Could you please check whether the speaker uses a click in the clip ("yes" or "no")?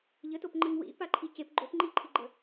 yes